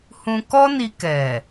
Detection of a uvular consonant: absent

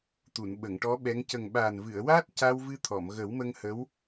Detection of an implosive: present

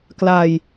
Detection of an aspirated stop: absent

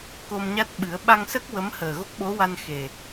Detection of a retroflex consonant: absent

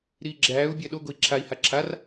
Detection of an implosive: present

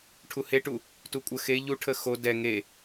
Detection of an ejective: present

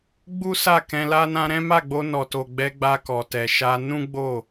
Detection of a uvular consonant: absent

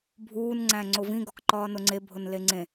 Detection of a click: present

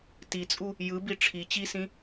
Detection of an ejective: present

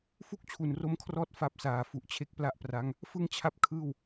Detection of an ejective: absent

